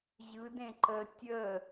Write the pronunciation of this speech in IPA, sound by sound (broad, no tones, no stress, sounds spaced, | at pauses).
ʑ ɯ d ẽ ǃ ə tʲ ə